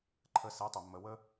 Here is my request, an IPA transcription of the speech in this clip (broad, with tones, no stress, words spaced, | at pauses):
ǃʰə˧sɛ˨˦tˤʊ˨mːə˨ wə˧